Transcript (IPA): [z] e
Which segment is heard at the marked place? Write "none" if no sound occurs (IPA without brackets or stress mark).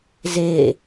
z